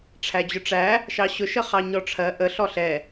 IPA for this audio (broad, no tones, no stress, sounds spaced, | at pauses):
ʈ͡ʂʰ æ d͡ʑ ʊ ʈ͡ʂ æ | ʃ ɑ ɕ ʊ ʃ ə χ ɑ ɲ ɔ ʈ͡ʂʰ ɜ ʔ ə ɬ ɔ ɬ ɛ